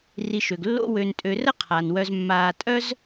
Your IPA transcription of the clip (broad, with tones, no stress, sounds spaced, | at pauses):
r i˨ ʃ ø˩ ɡ lː o̰˦ w ø˨ n tʼ ø˨ r ə˥ qʰ a˩ n w œ˨ z mː aː˨ tʼ œ˥ z